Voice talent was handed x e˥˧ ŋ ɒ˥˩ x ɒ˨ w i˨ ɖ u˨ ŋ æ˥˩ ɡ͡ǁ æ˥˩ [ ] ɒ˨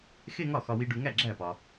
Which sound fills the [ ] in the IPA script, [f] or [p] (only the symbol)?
p